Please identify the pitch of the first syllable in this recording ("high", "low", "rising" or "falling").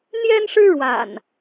high